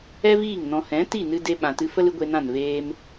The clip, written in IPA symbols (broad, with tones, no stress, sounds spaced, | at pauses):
ɛ˦ v iː˦˨ ŋ n ɔ̃˧ h ɛ̃˨˦ t i˦˨ n ɨ˦ d e˦ ɓ ã˨ t ɨ˧ f ə˦ l ɨ˦ ɡʷ e˧ n ã˦˨ n v eː˧ m